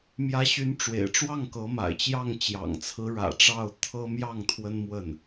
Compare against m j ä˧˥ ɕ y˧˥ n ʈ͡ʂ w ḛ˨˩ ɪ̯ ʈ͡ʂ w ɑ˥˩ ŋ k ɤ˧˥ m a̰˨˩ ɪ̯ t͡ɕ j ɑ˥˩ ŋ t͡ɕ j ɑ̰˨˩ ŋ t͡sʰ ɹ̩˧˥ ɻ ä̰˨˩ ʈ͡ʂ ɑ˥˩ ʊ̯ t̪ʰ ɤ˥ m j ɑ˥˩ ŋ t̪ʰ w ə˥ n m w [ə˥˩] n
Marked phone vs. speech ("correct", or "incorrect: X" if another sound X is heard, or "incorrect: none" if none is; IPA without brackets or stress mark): correct